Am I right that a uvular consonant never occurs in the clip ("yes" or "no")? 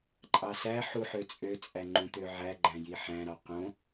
no